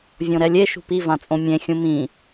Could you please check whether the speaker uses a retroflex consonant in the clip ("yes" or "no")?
no